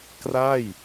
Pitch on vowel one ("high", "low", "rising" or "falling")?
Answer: falling